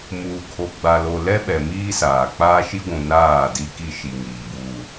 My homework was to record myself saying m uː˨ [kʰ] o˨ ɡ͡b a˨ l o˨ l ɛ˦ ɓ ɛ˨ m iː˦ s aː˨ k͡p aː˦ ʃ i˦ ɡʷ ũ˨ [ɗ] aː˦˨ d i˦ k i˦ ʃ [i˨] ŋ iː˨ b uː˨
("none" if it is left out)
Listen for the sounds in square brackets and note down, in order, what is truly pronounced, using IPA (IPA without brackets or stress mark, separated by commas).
kʰ, n, i˨